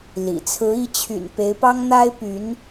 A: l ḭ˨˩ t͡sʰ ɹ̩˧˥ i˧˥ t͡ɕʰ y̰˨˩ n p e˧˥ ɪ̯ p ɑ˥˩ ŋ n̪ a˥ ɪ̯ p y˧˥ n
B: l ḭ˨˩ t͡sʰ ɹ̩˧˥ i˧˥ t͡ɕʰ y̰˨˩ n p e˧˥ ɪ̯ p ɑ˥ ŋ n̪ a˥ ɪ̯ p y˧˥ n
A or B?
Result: B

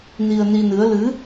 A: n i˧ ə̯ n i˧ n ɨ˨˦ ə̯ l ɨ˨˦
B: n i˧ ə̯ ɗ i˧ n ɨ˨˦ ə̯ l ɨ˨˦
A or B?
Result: A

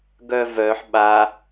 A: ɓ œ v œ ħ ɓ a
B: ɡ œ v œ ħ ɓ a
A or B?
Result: B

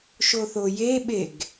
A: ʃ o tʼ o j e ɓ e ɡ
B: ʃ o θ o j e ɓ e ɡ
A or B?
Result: B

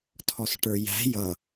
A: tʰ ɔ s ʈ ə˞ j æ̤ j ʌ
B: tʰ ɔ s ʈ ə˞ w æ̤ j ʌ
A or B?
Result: A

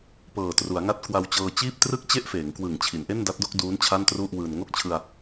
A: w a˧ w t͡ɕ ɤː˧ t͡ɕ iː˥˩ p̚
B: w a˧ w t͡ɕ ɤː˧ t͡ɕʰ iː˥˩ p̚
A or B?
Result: A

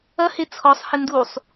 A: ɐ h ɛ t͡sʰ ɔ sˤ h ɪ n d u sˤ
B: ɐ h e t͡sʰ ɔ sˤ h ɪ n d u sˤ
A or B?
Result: B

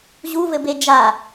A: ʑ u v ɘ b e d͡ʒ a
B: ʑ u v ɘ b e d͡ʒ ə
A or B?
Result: A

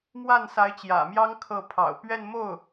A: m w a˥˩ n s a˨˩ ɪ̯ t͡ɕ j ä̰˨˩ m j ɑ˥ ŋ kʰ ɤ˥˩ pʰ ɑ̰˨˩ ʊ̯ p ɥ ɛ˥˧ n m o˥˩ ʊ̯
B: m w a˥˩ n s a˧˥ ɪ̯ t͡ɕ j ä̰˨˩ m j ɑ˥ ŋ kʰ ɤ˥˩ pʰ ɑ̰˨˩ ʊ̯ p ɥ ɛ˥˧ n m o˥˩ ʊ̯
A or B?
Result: B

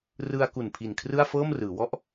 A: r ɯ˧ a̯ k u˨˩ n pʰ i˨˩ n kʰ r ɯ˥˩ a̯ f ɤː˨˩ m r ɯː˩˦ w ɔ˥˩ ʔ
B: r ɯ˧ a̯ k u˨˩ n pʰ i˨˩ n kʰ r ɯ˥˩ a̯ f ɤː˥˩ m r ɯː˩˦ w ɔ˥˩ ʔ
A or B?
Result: B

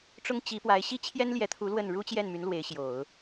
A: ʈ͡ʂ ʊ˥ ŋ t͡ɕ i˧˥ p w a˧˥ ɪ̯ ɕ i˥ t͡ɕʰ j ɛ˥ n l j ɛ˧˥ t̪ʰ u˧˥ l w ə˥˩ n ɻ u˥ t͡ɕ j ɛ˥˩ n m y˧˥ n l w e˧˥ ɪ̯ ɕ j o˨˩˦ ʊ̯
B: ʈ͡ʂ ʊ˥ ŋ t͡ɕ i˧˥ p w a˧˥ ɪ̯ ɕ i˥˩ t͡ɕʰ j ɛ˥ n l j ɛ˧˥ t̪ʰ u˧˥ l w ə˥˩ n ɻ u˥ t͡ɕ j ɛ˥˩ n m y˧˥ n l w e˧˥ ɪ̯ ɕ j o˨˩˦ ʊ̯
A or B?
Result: A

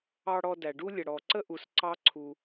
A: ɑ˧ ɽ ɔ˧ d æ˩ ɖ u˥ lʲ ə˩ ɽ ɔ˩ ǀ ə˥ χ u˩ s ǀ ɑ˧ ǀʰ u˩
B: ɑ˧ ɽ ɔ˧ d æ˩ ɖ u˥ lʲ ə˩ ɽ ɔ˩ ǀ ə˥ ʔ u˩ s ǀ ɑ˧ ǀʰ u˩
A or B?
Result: B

